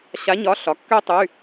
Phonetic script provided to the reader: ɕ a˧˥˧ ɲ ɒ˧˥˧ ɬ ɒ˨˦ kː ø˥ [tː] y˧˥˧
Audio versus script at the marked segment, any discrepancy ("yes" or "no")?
yes